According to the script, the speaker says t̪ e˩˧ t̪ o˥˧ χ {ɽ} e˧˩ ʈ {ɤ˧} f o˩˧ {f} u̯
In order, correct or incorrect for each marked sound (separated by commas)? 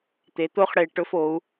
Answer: correct, incorrect, incorrect